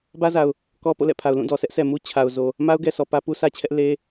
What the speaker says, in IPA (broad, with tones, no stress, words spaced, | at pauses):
bä˦za˨ʊ̯ | kɔ˦ po̰˦˨lɛ̰˦˨pʰa˨ʊ̯ lũ˦˨dɔ˨ sʰɛ˦ʔsʰɛ˨mu˦ t͡ɕʰa˨ʊ̯zo˨ | ma˦ʊ̯ɡɛ˨sɔ˨ pä˦pu˦sʰä˦t͡ɕʰɛ˦ʔ le˦